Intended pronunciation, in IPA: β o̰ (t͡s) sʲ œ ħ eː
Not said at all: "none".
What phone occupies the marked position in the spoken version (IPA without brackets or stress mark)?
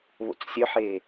t͡s